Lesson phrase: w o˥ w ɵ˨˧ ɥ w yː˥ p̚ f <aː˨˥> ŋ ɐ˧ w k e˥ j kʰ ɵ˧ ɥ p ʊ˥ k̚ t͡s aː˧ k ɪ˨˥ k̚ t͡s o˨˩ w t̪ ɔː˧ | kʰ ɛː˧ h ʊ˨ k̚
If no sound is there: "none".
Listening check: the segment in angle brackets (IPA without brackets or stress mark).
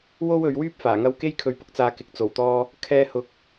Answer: aː˨˩